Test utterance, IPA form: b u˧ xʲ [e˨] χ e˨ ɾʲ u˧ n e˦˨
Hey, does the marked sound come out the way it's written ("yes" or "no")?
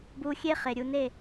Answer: no